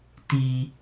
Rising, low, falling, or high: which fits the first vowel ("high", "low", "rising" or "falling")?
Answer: low